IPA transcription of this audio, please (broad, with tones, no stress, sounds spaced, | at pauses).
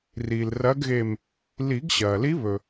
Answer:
r iː˩ l r ɐː˧˥ ɡ ɣ e˧˩ m | l i˨˩˦ ɡ ɕ ɐː˩ l i˧˥ β ɵ˩